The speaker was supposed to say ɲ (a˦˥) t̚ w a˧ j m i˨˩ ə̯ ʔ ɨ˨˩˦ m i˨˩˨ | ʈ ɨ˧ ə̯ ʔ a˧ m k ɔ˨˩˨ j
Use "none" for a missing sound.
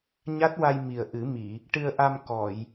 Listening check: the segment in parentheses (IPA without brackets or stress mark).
a˦˥